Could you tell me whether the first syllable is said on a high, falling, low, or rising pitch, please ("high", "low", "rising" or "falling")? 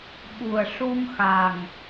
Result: low